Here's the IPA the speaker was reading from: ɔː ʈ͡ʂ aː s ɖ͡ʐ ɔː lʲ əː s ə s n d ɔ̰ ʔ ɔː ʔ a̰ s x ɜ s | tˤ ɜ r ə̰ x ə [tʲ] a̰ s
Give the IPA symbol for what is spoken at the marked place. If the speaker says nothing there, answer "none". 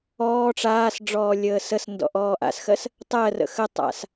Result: tˤ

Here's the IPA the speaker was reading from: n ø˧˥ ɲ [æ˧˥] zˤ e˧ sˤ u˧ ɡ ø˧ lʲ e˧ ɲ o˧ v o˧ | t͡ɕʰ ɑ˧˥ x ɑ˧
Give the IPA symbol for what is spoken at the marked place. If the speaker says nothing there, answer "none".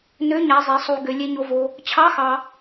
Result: æ˧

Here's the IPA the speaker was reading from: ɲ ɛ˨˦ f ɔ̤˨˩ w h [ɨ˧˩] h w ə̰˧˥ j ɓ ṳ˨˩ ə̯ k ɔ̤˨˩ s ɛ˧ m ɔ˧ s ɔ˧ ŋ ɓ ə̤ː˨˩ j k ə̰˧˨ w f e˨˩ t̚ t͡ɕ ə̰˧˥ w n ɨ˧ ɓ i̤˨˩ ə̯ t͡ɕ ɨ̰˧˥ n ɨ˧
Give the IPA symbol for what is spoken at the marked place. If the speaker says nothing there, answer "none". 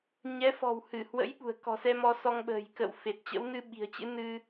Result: ɨ˧˩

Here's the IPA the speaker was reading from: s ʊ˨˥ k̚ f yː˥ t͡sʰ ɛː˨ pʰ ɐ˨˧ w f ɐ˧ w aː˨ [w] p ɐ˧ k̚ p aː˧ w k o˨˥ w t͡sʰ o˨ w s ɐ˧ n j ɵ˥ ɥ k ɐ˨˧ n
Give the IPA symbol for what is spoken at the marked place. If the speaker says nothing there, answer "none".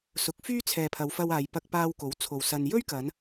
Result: j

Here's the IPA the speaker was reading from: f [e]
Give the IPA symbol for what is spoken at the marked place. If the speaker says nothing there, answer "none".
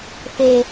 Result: e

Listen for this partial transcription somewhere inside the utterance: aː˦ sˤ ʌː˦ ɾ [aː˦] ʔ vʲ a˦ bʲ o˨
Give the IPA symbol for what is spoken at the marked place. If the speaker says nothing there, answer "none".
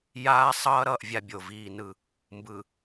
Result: ʌː˦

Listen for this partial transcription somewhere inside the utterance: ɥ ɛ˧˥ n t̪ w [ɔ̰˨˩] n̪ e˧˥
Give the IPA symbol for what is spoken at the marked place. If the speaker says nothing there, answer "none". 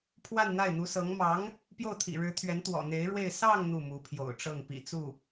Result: ɔ̰˨˩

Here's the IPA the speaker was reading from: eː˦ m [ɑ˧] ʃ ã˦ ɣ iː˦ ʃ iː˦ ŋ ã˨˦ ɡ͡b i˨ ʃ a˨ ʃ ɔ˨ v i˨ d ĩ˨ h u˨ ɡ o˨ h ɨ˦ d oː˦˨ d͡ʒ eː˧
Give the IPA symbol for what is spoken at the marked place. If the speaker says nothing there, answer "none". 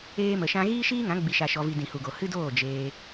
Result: ə˧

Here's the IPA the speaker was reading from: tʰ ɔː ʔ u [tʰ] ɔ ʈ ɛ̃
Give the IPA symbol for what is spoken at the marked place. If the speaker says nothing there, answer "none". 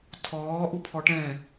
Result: pʰ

